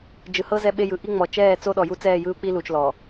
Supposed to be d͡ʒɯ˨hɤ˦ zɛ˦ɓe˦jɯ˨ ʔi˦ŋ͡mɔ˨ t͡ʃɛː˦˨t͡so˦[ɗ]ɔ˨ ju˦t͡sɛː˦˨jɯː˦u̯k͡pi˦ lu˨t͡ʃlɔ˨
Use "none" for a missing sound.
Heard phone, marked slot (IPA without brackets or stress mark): ɗ